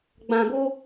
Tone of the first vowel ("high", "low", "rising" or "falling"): low